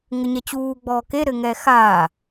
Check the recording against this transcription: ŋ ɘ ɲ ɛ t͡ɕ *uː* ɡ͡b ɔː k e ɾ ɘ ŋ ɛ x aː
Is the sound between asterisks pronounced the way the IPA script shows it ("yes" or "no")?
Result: yes